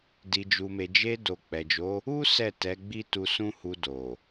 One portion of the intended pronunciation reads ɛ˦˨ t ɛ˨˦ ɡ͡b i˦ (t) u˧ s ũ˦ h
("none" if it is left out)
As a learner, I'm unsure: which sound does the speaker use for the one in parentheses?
t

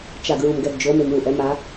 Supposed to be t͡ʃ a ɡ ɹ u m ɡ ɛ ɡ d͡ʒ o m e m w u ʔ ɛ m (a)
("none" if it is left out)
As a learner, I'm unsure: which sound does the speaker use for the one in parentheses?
a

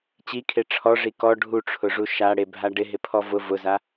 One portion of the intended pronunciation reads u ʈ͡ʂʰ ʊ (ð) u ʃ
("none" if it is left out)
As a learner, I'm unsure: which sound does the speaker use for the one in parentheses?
ʐ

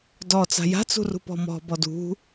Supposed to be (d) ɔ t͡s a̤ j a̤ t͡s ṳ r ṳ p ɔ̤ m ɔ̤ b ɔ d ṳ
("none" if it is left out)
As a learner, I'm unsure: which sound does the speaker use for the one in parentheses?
d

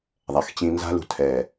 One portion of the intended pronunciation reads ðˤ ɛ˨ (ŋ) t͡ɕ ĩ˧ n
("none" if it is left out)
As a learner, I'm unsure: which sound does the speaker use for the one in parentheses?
x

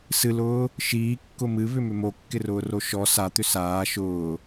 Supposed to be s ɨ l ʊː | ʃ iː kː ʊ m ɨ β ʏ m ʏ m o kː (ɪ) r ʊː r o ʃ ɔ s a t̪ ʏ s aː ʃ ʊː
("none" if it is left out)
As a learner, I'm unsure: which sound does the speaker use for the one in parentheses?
ɪ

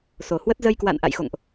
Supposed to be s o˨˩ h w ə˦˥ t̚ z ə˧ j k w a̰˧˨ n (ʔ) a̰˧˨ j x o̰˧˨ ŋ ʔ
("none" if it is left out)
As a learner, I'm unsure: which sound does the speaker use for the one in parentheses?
ʔ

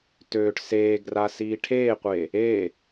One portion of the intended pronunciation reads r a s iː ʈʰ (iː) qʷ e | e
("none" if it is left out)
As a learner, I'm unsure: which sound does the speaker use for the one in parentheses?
eː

